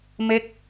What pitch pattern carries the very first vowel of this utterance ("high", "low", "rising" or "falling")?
falling